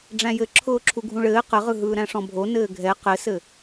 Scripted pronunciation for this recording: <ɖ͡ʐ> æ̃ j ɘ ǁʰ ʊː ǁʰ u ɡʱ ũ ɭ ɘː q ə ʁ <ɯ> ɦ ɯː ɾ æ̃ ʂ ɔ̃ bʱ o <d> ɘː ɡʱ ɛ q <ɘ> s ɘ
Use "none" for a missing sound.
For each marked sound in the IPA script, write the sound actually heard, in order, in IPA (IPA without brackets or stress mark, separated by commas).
ɖ͡ʐ, ɯ, n, ɘ